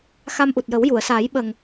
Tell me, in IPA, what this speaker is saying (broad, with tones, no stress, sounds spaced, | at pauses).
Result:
x a˧ m ʔ u˨˩ t̚ j ə˨˩˦ w j u˨˩˨ ə̯ s aː˨˩˦ j ɓ ə˨˩ ŋ